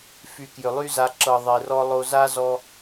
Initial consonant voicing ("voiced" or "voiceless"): voiceless